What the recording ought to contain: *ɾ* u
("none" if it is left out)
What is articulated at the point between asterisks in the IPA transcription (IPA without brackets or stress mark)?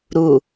ɾ